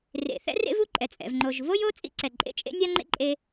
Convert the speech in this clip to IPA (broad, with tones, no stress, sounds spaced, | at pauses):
r ḛ˩ θ ɛ̰˥ r ḛ˥ v u˥ ǃʼ ɛ˩ t͡sʼ ɛ̰˩ v ŋ͡ǃ o˩ ʒ v o˥ j o˥ t͡sʼ ḭ˥ ǀ ɛ˩ ǃʼ ḛ˥ t͡ʃʼ ḛ˥ nʲ a˥ ŋ͡ǃ ḛ˥ ǃʼ e˥